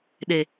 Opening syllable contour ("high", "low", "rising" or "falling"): low